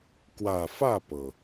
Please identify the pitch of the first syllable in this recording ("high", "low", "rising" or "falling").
low